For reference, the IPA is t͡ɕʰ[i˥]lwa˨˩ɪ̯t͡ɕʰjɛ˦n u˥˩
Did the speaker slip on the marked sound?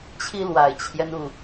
no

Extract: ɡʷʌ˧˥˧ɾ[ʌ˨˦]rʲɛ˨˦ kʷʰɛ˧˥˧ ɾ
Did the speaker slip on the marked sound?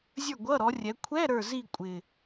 yes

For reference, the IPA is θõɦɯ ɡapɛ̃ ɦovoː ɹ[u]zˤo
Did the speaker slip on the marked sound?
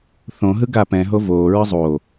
yes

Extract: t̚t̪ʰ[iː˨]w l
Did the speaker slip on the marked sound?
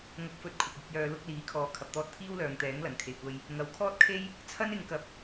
yes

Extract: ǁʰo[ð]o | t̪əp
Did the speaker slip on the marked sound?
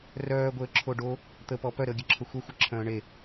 yes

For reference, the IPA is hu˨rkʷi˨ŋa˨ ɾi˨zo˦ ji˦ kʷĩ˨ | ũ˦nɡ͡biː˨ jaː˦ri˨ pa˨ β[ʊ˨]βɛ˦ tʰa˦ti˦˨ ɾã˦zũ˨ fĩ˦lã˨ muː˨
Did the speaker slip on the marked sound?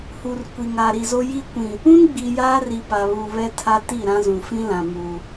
yes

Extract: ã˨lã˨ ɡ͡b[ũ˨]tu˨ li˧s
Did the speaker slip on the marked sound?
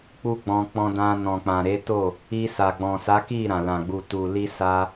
yes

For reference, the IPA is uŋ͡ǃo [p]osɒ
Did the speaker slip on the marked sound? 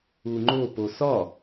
no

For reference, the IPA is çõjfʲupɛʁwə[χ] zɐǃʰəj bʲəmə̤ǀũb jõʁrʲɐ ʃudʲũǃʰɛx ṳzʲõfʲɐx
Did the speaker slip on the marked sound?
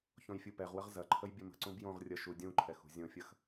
yes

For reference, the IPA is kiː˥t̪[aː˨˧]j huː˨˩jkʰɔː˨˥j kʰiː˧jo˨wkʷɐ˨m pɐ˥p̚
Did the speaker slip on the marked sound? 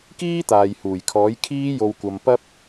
yes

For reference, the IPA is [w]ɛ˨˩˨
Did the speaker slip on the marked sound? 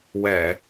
no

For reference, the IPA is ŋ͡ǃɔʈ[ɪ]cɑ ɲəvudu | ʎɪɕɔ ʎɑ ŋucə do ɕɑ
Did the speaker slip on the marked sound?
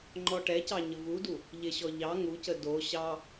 yes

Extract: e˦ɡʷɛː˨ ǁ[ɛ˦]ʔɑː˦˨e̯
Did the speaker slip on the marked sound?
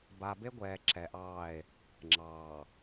yes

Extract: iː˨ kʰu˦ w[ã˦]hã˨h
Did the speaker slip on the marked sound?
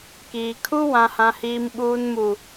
yes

